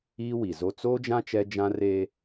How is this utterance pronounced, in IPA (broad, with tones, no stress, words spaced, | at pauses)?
iː˦wi˨ zo˦ t͡soː˦d͡ʒã˦ t͡ʃɛ˦d͡ʒã˦reː˦